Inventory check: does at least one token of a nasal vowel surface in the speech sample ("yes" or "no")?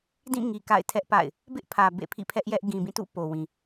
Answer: yes